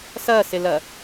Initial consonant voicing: voiceless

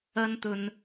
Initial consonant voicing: voiced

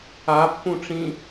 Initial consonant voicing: voiceless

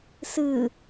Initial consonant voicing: voiceless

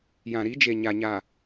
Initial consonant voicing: voiced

